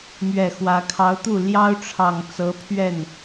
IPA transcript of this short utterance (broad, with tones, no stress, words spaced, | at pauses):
mɥɛ˨˩ xwä˧˥ kʰɑ˧˥ʊ̯t̪u˥˩ ljɑ˥ʊ̯ʈ͡ʂʰɑ˨˩ŋ t͡sɤ˧˥pʰɥɛ˥˩n